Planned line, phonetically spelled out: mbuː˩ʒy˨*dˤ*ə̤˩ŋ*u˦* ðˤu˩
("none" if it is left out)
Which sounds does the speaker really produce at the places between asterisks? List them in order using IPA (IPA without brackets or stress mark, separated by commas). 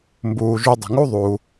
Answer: dˤ, u˦